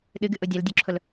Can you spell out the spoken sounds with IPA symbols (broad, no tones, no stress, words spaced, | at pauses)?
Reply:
ɗɨɡɨʔʊ dʲɐldʲoǁʰʊl